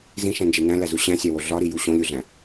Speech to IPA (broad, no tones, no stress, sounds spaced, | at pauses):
z ĩ ʃ æ̃ n d͡ʒ e n æ̃ l æ z u ɕ æ̃ sʲ æ w o ɮ ɒ ɾ i j u ɕ õ lʲ u ɮ æ̃